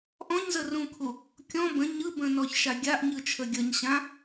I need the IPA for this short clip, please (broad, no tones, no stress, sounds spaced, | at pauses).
ʔ ɔ̃ ɲ z ə r ũ kʰ u | kʲ ɔ̃ b ə̃ ɲ ɯ b ə̃ n ɔ ç ʃ a ɡʲ a ʔ ɲ ɯ t͡ʃʰ ə ɡʲ ə ɲ ɕ ã